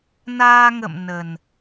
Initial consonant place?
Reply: alveolar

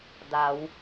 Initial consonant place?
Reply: alveolar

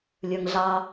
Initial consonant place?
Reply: alveolar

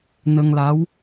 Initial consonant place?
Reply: alveolar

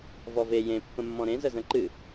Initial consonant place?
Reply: labial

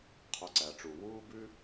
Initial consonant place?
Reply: uvular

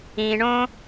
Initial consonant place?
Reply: retroflex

